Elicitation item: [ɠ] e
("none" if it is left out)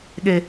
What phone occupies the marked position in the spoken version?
ɠ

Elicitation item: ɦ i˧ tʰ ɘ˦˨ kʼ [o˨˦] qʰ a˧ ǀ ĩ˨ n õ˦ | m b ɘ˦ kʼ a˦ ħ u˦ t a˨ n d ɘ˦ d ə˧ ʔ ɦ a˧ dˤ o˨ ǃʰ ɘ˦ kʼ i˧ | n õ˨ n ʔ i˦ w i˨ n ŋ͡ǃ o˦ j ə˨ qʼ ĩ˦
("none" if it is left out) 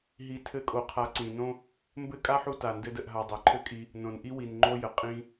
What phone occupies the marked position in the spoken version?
o˧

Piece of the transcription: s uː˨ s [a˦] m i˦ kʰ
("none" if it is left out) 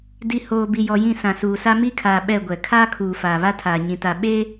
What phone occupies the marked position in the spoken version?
a˦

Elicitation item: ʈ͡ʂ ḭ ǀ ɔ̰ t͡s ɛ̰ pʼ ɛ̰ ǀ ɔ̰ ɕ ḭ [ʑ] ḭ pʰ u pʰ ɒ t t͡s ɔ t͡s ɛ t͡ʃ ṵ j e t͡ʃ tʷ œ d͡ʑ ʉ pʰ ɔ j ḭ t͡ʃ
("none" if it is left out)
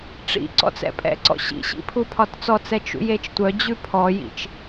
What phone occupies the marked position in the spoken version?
ɕ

